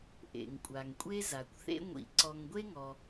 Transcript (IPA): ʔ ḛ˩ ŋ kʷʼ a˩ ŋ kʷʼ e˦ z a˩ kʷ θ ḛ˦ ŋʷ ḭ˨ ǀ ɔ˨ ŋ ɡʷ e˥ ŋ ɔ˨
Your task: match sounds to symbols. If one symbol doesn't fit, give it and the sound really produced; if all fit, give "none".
none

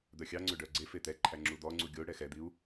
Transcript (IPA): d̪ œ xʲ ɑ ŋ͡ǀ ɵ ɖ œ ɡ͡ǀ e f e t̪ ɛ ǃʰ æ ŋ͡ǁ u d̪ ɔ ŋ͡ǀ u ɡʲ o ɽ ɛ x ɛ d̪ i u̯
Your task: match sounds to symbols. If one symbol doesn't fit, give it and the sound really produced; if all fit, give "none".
none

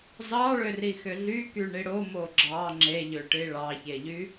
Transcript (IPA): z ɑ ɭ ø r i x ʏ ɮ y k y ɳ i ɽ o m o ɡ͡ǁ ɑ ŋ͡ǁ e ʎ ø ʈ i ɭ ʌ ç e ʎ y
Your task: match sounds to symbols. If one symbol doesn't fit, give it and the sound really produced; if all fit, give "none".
ʌ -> ɑ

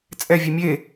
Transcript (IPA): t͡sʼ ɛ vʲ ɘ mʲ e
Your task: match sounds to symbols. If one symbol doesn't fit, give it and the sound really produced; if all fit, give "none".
ɘ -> ɛ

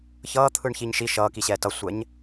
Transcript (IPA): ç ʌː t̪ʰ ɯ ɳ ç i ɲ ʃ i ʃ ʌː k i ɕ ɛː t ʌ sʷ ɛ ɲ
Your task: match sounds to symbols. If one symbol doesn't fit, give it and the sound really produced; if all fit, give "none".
none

